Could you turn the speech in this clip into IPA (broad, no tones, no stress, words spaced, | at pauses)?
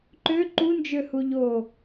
ǃø ǃund͡ʒøhu ʎo